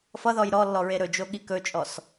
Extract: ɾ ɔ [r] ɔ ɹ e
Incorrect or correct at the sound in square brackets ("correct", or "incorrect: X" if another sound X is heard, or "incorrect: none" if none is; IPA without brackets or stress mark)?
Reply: incorrect: lː